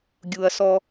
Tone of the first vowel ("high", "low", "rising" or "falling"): low